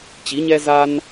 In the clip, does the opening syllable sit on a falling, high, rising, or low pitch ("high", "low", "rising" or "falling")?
rising